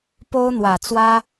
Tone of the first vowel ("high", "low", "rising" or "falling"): high